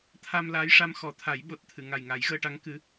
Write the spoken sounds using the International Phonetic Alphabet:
t̪ʰ a˧ m l aː˧˥ j ʂ a˧ m x ɔ˨˩˦ t̪ʰ a˨˩˦ j ɓ o˨˩ t̚ t̪ʰ ɨ˨˩˨ ŋ a˨˩ j ŋ a˨˩˦ j ɣ əː˧ ʈ a˧˥ ŋ k ɨ˧˥

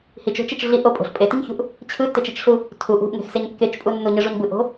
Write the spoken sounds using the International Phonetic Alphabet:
h i t͡ʃ o̤ t͡ʃ e t͡ʃ ɮ i ʔ o pʼ o̤ ɬ pʼ e t i ɲ ç ṳ ʔ | t͡ɕʰ ɯ tː e t͡ʃ i t͡ʃ ɬ u | tʰ u ʔ ṳ ʔ ŋ e̤ x s e ɲ kː e t͡ʃ pʼ u nː u ɲ ɯ ʐ u ɲ b ɯ ʔ o̤

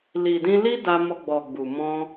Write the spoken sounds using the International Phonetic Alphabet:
l i˨ d ĩ˧ l i˦ d a˧ m ɔ˧ ɡ͡b ɔ˨ ɡ͡b u˨ m ɔ̃˧

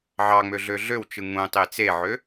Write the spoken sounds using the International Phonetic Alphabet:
ʕ ɑ ŋ͡m ø ɮ ø ɮ ø w t͡ʃ ɯ ŋ ũ tˤ e t͡s e ʕ ø

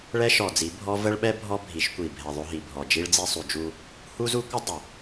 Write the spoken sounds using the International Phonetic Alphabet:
ɭ ɛ˦ ʃ ɔ˨ d͡z i˨˦ bʱ ɔ˦ v ə˦ ɭ ɓ ɛ˦ bʱ ɔ˦ bʱ i˨˦ ʃ kʷ i˨ bʱ ɛ˨ ðˤ ʏ˦ ɦ i˨ bʱ ɔ˨ d͡ʒ i˦ ɭ d͡z i˦ sˤ u˨ d͡ʒ u˦ | h u˦ z u˦ kʷ ə˦ dˤ ə˨

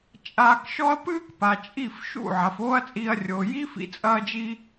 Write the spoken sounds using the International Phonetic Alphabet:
t͡ʃʼ aː˧ k ʃ ɔ˦ ɐ̯ p ɨː˦ k p a˨ t͡ʃʼ i˦˨ f ʃ ṵ˦˨ ʕ a˨ f oː˦ ɐ̯ t͡sʼ iː˧ ɐ̯ rʲ oː˨ j i˦ f ḭ˧ t͡sʼ ɐː˧ d͡ʒ i˧

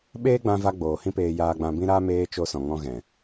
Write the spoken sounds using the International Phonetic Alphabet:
ɓ eː˦ ɡ͡b ã˧ v a˧ ɡ͡b oː˨ h ĩ˦ p eː˧ j aː˧ ɡ͡b ã˧ b ĩ˦ ɾ aː˦ m eː˧ t͡ʃ o˧ s ɔ̃˨ ŋ ɔ̃˧ ɣ ɛ̃˨

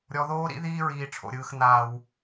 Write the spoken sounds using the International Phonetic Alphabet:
ɾʲ ɔ˩ ð oː˧ ɾ ḭ˧ ð iː˧ ɹ iː˩ ʈ͡ʂʰ o̰˩ ɾʲ ɯː˩ x n̪ aː˩ w

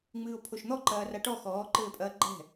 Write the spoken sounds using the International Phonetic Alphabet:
ŋ͡m ɨː o̯ pʰ o ʃ n̪ ɔ ǃ ɐː r a ʈ ɔ x ɔː ǃ ɘː pʼ ɐː ɡ͡ǃ ɛ̤

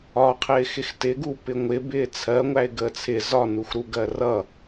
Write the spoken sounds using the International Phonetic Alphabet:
ɒ qʰ ɪː x ɪ x t ɪ ɡ u p ɪ ŋʷ ɪ b ɪː t͡sʰ ɜ ŋʷ æ ɪ̯ ɡ əː t͡sʰ ɪ z ɒ n u x ɾ u ɡ ɜ r ʌ

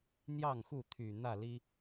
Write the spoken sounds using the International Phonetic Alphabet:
n̪ j ɑ˥˨ ŋ x u˥˨ t̪ʰ y˨˩ n̪ ä˥˨ l i˦

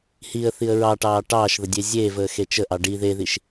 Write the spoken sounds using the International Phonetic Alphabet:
h i ə̯ θ i ə̯ ɹ ɑ ʈ ɑː ʈ ɑː ʃ ð ə dʲ e zʲ eː v əː x e t͡ʃ ə ʔ ɑ ɖ i ð e ð i ʃ

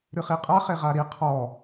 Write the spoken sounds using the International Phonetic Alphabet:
ɾ ɨ χ i qʼ a χ e ʁ a ɾ i qʰ ɔ

